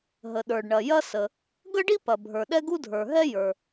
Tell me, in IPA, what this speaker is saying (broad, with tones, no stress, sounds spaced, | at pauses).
ɦ ə˩ ɗ ə˞˩ ɖ ɳ ɐ˩ j ɐ˥ s ə˩ | ɡ ə˥ ɖ i˥ p ɐ˩ bʱ ə˞˩ ɗ ɛ˥ ɡ u˥ dʱ ə˞˩ ɦ ɛ˥ j ə˞˩